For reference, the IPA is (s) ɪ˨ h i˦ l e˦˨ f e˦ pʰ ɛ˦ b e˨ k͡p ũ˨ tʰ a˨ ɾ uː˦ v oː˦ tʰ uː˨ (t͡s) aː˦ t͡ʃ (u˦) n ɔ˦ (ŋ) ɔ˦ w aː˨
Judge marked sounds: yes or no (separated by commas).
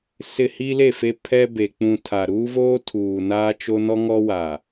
yes, no, no, yes